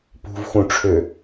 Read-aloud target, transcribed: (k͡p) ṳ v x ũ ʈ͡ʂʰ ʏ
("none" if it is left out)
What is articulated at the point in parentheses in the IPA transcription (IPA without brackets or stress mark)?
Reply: p